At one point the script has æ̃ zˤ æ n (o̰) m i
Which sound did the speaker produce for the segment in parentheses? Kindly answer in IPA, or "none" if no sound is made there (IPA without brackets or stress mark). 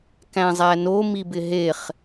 o